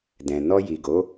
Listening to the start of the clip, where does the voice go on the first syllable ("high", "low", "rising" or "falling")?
low